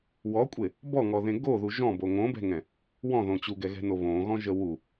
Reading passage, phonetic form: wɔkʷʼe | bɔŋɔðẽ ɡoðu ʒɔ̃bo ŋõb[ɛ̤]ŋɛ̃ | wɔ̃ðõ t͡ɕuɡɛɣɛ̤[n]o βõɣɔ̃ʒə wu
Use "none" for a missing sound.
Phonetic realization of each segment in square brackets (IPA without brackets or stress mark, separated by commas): ɛ̤, n